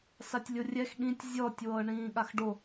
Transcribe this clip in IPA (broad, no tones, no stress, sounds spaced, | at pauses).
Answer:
s a tʲ lʲ o rʲ ɛ x ɠ ĩ tʲ zʲ ɔ tʲ w ɤː ɳ ĩː ɠ a x ɖ o